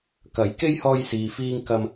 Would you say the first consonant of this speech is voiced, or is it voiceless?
voiceless